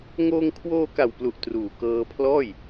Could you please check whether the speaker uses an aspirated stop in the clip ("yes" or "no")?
yes